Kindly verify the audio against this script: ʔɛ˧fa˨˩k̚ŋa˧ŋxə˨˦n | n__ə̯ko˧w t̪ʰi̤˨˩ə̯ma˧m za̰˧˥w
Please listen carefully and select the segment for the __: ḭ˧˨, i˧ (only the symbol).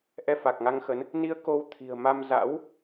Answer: i˧